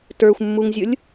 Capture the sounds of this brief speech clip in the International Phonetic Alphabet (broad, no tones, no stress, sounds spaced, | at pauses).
t ə˞ xʷ mː u ŋ zʲ ʊ lʲ